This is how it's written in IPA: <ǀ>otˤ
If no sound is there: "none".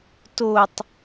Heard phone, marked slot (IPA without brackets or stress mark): t